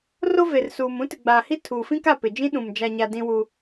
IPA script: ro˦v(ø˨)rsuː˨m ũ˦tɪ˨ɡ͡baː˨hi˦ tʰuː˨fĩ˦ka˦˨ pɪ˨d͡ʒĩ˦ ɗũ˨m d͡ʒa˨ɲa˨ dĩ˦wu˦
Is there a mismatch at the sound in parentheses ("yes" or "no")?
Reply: yes